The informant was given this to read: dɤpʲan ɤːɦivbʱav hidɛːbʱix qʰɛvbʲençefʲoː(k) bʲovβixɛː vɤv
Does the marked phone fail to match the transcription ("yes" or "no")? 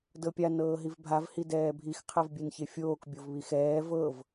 no